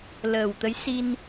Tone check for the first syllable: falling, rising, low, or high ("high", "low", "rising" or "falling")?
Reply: low